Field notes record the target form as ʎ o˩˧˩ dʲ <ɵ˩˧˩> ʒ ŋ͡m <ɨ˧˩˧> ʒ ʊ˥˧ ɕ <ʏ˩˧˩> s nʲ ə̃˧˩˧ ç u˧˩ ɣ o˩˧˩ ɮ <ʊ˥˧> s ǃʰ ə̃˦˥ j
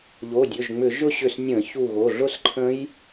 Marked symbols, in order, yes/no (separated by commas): yes, no, no, yes